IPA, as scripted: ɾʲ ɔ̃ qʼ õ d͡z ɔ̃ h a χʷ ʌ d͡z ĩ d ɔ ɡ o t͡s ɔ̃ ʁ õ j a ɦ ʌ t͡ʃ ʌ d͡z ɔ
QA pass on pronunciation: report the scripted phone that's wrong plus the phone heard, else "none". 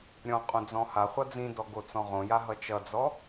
none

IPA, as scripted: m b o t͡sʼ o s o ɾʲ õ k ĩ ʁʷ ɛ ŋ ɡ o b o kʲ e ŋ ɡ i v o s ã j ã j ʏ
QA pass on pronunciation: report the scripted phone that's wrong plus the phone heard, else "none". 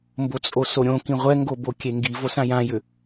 none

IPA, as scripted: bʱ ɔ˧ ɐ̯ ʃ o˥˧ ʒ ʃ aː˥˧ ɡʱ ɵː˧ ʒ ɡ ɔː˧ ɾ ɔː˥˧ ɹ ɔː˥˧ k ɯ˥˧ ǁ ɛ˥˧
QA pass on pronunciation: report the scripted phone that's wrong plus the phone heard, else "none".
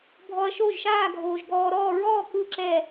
ɵː˧ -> oː˧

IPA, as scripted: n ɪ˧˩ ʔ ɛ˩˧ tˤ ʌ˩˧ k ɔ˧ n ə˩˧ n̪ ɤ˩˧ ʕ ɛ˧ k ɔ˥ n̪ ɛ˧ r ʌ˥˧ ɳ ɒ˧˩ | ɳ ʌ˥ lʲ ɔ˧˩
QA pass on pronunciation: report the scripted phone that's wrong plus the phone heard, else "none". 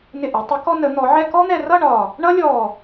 ɤ˩˧ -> ɔ˩˧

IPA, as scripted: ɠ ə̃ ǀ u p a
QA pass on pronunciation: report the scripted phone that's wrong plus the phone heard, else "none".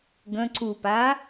ɠ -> ɡ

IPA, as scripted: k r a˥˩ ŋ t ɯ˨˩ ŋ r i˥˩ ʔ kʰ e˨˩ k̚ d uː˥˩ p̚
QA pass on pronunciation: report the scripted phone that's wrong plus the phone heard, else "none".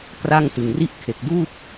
none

